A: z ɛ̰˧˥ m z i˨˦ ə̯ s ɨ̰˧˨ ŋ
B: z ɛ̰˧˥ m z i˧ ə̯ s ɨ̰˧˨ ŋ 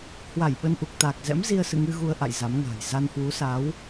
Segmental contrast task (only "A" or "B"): B